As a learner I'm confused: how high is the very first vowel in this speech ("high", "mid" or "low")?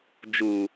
high